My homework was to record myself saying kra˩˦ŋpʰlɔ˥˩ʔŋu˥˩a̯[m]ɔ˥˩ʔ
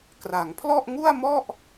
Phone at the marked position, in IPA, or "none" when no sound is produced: m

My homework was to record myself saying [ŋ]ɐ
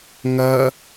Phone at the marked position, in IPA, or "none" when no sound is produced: ŋ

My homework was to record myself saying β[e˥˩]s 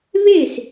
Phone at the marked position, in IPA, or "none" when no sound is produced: e˥˩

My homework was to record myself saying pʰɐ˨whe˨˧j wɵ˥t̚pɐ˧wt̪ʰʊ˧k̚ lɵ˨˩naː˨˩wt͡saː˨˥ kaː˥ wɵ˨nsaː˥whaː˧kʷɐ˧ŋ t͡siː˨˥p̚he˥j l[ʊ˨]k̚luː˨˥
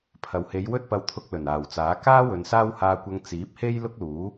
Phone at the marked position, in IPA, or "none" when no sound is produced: ʊ˥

